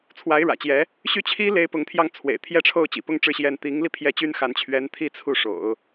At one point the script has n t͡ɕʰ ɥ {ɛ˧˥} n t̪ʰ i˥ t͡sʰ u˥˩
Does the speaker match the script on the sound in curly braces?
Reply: yes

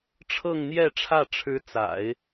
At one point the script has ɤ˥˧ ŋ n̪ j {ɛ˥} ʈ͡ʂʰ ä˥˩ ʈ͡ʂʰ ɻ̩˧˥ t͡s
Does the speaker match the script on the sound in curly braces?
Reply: no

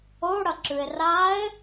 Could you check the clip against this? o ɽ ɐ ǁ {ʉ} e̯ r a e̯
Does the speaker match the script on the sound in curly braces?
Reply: yes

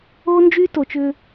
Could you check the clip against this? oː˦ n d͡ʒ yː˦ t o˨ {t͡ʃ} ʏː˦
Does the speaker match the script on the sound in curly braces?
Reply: yes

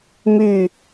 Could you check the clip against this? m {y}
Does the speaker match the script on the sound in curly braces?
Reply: yes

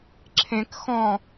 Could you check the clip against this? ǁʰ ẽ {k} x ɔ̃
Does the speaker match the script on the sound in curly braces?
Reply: yes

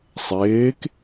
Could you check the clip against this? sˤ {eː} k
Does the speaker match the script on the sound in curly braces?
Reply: yes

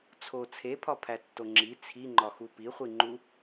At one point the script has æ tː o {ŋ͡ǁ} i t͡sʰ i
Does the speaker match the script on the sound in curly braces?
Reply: yes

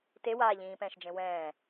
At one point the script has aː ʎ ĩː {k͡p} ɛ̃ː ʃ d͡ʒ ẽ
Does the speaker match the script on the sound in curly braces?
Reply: no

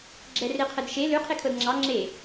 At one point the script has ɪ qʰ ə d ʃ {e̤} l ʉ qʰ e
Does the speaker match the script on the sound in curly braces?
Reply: no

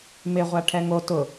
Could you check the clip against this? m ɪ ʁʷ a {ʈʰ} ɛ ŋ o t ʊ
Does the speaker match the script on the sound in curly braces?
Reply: yes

